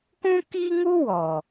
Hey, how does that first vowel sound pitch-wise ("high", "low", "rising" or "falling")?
high